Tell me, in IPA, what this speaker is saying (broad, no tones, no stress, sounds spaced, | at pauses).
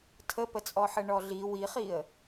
tʰ ə p ə t͡sʼ ɔ ħ ə ɳ ɔ ɮ i w i χ i ə̯